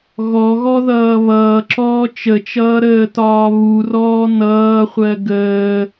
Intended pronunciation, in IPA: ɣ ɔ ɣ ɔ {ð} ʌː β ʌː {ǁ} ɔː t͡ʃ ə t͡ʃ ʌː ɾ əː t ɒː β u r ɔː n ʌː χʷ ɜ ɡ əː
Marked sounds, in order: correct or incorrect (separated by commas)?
correct, correct